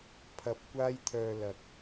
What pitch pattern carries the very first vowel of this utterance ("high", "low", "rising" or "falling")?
low